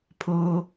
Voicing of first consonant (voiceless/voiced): voiceless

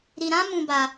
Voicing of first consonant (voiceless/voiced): voiced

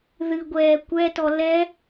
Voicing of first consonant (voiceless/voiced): voiced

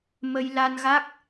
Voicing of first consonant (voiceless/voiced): voiced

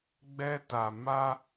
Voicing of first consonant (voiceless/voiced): voiced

